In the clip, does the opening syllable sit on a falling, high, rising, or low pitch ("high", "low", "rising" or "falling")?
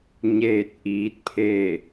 falling